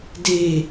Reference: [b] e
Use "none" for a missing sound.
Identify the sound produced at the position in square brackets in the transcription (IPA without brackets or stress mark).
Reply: d